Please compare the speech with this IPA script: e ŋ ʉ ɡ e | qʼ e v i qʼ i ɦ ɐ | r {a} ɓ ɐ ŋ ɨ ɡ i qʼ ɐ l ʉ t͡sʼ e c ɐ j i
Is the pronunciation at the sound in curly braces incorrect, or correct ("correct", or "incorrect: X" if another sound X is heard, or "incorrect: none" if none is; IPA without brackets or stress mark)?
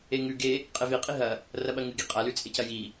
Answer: incorrect: ɐ